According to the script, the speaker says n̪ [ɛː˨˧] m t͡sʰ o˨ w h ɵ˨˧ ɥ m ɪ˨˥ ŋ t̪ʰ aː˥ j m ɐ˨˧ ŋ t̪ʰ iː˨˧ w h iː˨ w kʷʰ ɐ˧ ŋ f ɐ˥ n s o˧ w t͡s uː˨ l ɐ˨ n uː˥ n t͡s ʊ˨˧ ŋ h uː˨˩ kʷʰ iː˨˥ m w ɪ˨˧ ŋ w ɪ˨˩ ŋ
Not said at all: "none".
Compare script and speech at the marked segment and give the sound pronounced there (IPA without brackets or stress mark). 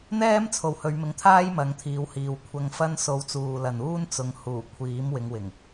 ɛː˥